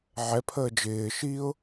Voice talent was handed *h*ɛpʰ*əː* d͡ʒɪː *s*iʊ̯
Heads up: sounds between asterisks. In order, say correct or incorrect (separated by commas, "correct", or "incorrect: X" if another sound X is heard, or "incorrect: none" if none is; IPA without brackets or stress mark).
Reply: incorrect: ʕ, correct, incorrect: ʃ